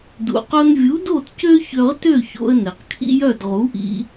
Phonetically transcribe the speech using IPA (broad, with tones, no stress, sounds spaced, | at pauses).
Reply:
d ṵ˩ q o˧ n vʲ u˨˥ d o˥˨ t c ø˥ ç ø˧ ʁ t ø˥˨ ç o̰˧ ə̯ n ɛ˩ q kʰ ḭ˥ j œ˥˨ d ʁ u˨˥ ʔ ḭ˧